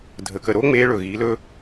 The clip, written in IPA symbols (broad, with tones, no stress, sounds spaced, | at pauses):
dʱ ə˨ k ə˨ ɾ o˦ ŋ͡m e˧ ɭ ɵ˨ ɣ i˨˦ l ɵ˦